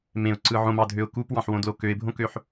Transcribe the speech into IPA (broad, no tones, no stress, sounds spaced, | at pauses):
m ẽ ʊ̯ ǀ ɯ ʕ õ m ɑ dʱ ø ʊ̯ k u p w ɑ̃ ħ w õ d l o k ø ɪ̯ bʱ õ k ø ħ